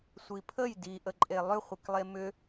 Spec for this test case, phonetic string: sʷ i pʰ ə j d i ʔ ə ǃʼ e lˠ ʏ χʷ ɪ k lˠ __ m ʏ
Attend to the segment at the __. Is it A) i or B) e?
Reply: B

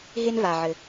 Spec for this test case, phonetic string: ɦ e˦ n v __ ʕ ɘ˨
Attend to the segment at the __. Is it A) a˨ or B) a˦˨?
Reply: A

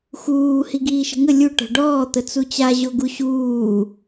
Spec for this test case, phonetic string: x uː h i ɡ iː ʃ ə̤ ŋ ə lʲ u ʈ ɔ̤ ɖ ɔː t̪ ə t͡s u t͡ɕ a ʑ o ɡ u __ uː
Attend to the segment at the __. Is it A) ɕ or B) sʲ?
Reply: A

